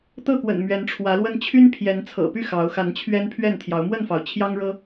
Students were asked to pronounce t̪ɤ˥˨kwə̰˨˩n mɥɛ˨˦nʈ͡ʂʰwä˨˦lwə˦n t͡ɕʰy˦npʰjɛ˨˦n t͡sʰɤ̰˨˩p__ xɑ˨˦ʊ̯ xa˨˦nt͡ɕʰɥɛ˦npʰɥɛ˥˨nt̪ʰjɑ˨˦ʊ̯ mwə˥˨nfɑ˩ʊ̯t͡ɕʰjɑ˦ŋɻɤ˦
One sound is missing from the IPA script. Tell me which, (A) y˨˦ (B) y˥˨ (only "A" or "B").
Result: B